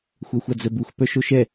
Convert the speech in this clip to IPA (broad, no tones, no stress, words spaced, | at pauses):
xʷœxʷad͡zœbux pœʃoʃɛ